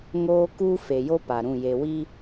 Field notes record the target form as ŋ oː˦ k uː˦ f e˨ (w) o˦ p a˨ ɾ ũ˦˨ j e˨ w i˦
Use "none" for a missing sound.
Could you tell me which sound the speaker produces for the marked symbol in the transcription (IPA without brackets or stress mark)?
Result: j